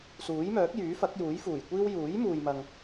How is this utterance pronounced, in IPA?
s uː˨˥ j m œː˨˥ k̚ j yː˨˥ f ɐ˨˥ k̚ j uː˨˥ j f uː˨˩ j kʷ iː˥ w j uː˨˥ j m uː˨ j m ɐ˨ ŋ

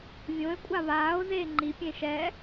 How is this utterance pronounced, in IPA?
vʲ õ e̯ kʷʼ a β aː o̯ z eː ŋ͡ǃ i pʲ ẽ ʃ ɛ

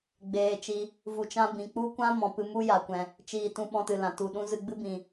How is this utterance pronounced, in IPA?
ɡ͡b eː˧ t͡ʃ i˧ | v u˧ t͡ʃ ã˦ b ĩ˨ k͡p u˦ kʷ ã˦ m ɔ̃˨ p ɨ˧ m u˦ j a˨ kʷ ɛ̃˨ | t͡ʃ iː˧ t ũ˧ ɓ ɔ̃˧ t ɨ˨ l ã˨ t u˨ ɗ ũ˦ z ɨ˧ ɡ͡b ɨ˦ b ĩ˨

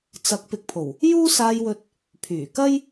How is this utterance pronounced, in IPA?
t͡s ɐ˨˥ k̚ p ɪ˨ k̚ pʰ o˨˩ w | j uː˥ s aː˧ j w ɵ˧ t̚ | pʰ yː˨˩ k ɐ˥ j

